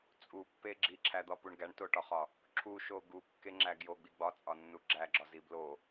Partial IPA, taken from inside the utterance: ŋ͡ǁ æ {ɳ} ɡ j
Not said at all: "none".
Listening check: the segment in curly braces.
none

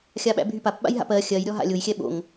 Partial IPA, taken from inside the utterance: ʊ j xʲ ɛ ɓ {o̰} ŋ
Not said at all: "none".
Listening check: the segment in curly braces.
o̰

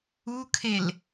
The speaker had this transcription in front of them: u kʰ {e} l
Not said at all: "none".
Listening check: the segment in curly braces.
e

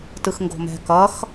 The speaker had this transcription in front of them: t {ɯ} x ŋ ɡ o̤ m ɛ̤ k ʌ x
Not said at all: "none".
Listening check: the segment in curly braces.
ɯ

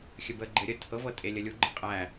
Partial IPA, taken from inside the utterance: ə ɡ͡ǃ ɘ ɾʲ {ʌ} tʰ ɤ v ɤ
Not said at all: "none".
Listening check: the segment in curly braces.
ə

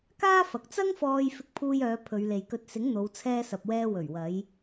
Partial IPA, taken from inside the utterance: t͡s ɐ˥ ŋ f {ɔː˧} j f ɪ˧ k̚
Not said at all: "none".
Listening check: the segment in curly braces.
ɔː˧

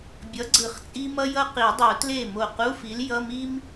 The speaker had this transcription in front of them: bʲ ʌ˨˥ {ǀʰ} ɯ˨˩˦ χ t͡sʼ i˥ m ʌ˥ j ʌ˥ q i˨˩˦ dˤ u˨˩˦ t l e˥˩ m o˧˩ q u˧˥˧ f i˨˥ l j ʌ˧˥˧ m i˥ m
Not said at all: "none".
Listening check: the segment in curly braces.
ɡ͡ǀ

